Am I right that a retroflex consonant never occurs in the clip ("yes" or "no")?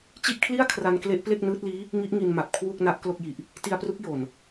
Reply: yes